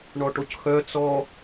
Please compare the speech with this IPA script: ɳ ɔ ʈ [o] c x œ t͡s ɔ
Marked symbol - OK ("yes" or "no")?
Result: yes